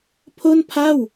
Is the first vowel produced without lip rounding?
no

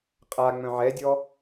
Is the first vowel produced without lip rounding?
yes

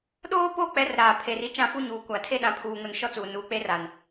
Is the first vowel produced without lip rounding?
no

